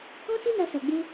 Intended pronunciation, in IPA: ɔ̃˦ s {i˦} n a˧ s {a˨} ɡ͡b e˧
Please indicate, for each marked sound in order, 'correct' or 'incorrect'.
correct, correct

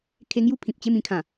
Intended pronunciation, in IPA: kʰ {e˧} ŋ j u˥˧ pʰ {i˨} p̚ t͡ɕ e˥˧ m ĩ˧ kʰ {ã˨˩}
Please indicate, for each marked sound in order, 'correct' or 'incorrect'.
correct, incorrect: ĩ˨, correct

